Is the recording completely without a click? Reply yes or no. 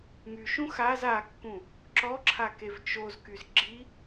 no